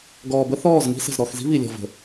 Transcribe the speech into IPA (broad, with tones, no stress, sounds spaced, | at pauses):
ɡ ɔː˨ b ə˦ θ ɔː˦˨ z ŋ i̤˦ s ə̤˨ z ɾ ɔ˨ x z i̤˦ β i˨ lʲ ɔ̤˨ v ə̤˨